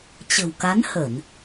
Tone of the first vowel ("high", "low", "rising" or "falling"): low